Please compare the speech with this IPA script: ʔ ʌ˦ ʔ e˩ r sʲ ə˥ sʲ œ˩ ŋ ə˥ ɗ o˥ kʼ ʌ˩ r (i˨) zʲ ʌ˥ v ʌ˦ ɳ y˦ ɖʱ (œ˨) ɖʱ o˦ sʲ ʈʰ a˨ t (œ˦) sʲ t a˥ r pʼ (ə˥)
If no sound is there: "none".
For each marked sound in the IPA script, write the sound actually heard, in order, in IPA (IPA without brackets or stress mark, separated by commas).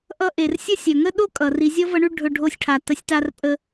i˨, ɵ˨, ə˦, ə˥